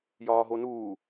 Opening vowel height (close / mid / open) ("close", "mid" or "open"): open